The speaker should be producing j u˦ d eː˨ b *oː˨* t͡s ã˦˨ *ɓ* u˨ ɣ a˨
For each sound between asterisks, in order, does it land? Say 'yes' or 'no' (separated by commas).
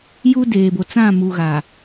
no, no